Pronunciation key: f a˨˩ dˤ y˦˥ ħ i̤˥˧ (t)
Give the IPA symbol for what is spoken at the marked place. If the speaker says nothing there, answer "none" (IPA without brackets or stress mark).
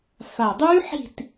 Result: t